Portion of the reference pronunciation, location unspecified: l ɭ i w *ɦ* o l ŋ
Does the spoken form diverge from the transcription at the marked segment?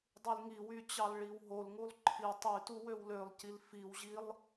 no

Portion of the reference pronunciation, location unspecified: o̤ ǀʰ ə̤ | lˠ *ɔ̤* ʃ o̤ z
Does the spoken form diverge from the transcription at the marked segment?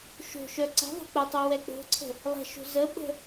yes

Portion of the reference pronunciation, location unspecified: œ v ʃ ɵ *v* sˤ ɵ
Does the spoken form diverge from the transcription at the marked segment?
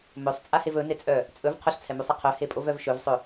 no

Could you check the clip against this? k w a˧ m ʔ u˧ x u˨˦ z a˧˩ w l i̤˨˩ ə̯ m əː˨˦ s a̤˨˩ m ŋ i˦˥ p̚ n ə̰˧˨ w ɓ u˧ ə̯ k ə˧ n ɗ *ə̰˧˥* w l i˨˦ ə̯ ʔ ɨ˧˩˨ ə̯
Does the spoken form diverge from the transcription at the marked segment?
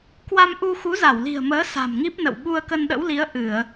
no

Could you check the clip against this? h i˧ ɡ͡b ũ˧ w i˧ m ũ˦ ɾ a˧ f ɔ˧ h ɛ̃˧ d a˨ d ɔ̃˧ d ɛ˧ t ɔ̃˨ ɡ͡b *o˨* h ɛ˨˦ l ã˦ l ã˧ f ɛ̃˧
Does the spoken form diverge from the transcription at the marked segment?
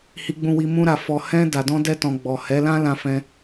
yes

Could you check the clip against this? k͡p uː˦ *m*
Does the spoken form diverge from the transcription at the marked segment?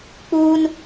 yes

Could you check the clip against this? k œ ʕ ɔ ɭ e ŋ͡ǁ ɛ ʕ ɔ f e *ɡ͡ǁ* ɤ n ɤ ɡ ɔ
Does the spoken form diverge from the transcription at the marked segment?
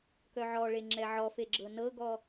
no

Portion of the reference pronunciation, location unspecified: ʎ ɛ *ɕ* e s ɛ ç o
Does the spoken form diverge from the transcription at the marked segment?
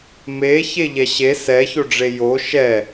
no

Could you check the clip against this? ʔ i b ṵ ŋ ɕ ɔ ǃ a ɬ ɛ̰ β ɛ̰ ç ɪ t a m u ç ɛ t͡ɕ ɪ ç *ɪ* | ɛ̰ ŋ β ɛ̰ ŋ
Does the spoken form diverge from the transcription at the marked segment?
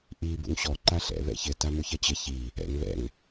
yes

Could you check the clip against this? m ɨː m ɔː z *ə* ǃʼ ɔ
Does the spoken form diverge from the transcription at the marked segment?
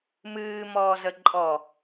no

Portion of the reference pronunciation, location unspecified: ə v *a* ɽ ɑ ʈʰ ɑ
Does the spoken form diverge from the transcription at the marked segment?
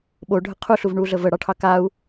yes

